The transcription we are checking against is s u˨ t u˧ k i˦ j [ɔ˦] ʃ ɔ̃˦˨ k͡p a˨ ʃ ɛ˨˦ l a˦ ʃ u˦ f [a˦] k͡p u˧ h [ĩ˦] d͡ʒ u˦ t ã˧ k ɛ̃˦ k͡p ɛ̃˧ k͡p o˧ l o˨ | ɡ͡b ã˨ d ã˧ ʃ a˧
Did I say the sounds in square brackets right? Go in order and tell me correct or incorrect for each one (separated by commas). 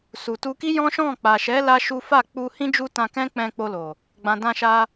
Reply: incorrect, incorrect, correct